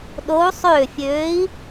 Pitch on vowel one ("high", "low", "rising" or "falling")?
rising